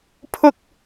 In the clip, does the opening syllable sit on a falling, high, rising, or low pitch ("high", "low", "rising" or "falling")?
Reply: high